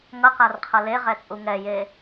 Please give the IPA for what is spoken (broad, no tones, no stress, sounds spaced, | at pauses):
ŋ ʌ q a r qʰ ʌ l e ʁ ɛ t͡sʼ u ŋ ɛ j e